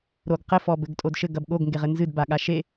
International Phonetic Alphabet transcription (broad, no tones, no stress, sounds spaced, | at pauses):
ɾ o ɡ q ɘ f ɔ b ɘ ɡ tʼ o d ʃ ɘ ɡ ɐ b ɠ o ɡ ŋ ɡ e ʁ ɘ n z ɨ d b a ɠ a ʃ e